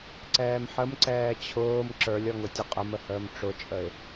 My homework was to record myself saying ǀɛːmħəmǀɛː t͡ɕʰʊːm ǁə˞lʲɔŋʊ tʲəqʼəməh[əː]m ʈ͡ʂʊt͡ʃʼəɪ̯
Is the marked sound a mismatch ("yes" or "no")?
no